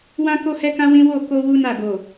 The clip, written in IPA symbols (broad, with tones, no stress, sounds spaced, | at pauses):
w ã˦ k o˦ h ɛ˦ k ã˦ w ĩ˦ w o˦˨ k o˧ w u˦ n a˦˨ ɡ o˨